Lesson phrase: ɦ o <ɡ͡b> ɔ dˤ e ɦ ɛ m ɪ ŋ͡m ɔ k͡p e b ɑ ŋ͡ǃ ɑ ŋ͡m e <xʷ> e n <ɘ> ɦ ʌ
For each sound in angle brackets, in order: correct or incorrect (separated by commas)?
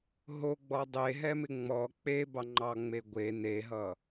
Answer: correct, incorrect, incorrect